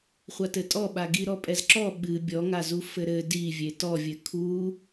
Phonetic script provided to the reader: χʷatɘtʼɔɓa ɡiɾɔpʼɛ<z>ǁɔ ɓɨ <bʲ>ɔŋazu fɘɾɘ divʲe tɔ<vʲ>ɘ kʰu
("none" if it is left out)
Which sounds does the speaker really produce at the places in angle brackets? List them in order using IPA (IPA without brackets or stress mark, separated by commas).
z, bʲ, vʲ